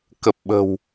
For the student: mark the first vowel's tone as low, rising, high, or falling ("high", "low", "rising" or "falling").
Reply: low